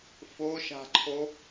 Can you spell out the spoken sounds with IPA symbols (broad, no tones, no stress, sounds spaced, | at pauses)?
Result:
f o ʃ a̤ ǃʰ o